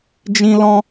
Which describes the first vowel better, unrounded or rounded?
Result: unrounded